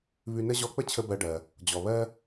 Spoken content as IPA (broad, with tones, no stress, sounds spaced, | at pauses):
β ʉ˧ n ə˥ ʑ ɔ˧ k͡p ə˥ t͡ɕʰ ə˧ b ɜ˧ ɖ ɜ˩ | d͡ʑ ɔ˩ β ɜ˥